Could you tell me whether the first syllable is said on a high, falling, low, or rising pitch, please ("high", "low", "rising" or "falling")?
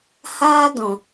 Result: high